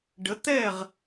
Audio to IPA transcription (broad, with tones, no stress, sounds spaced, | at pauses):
ɖ ə˩˥ t̪ ɛ˥˩ ʁ